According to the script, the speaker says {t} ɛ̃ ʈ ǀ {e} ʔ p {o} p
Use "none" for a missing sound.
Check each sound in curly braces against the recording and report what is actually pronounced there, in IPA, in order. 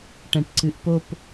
ʈ, ɨ, o

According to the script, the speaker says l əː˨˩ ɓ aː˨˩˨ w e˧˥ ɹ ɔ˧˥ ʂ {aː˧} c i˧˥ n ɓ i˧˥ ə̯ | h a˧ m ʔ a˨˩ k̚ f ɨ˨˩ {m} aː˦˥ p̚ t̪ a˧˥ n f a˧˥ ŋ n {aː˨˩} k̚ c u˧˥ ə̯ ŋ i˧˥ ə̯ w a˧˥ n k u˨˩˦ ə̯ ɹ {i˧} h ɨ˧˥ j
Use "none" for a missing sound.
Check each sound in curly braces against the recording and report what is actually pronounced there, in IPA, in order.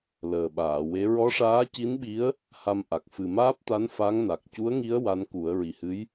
aː˧˥, m, a˨˩, i˨˩

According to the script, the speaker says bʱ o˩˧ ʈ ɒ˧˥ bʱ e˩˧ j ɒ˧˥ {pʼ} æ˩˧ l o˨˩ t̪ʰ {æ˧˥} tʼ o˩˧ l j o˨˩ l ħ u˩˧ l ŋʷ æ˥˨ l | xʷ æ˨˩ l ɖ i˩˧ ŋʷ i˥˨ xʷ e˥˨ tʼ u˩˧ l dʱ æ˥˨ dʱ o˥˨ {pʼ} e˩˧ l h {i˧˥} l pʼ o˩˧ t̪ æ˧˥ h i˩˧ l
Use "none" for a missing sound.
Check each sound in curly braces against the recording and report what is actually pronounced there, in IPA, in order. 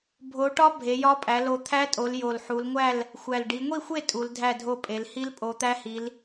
pʼ, æ˧˥, pʼ, i˧˥

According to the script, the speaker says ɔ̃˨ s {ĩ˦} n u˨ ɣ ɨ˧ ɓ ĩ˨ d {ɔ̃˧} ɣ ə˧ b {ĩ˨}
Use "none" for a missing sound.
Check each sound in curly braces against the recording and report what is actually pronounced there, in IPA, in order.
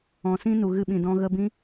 ĩ˦, ɔ̃˧, ĩ˦

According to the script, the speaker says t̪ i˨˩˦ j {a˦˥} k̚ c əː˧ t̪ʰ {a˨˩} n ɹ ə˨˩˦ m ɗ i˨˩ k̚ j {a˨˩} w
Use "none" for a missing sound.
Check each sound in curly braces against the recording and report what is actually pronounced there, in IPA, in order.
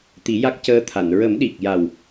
a˦˥, a˨˩˨, a˨˩

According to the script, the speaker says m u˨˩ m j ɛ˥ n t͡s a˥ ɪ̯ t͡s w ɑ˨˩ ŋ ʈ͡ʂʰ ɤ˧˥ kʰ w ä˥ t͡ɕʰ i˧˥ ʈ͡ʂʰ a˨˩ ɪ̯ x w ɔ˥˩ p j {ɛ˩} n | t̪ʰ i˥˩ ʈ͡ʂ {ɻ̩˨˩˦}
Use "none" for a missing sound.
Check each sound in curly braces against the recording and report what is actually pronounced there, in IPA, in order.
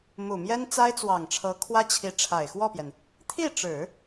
ɛ˩, ɻ̩˨˩˦

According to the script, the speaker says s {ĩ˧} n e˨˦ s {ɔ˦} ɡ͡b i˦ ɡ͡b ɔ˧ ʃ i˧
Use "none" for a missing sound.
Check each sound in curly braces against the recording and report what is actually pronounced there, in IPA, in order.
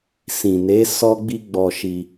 ĩ˨, ɔ˦

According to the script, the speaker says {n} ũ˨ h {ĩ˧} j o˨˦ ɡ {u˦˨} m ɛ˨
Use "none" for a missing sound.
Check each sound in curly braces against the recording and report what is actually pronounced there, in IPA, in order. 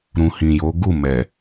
ɾ, ĩ˨, u˦˨

